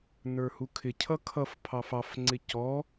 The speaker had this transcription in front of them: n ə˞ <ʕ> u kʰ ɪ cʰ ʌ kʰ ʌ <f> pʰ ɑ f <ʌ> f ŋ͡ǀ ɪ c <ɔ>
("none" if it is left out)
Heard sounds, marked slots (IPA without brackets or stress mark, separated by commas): h, f, ɑ, ɔ